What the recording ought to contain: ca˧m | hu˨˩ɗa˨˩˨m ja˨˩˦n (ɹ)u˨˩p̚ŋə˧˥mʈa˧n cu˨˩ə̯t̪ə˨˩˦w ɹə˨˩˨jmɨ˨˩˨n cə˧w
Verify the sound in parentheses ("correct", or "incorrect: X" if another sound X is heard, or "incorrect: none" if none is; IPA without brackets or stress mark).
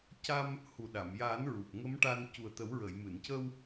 correct